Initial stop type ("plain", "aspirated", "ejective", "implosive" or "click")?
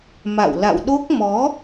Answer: implosive